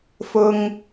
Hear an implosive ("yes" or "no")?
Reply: no